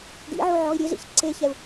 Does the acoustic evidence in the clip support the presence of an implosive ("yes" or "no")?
no